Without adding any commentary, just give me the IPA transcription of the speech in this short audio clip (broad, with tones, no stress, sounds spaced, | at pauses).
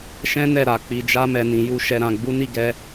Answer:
ʃ ɛ̃˦ n ɛ˦˨ ɾ a˨ k͡p i˨ d͡ʒ a˧ m ɛ˨ n ĩ˨ j u˧ ʃ ɛ˨ ɾ ã˨ ɡ͡b u˨˦ n i˦˨ ɡ ɛ˧